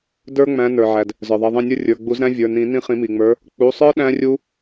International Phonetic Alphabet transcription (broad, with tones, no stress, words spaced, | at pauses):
də˞˦˥ŋ͡mæ̃˨˦ nə˞˩ʕæ˩d | zə˞˩ðˤɛ˩˧˩ðˤɛ̃˦˨nʲə˞˦˥ rʲə˞˩˧˩ɡ͡bu˨˩˦zɾæ̃˦˥ vʲə˞˩˧˩nĩ˨˩˦ nĩ˦˨χĩ˨˩˦mi˩ŋ͡mə˞˨˦ | k͡pu˩˧˩sˤə˞˦˥ ɗæ̃˦˥rʲu˦˥